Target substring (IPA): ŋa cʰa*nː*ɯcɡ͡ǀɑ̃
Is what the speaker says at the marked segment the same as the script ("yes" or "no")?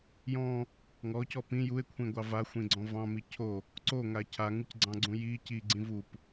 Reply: no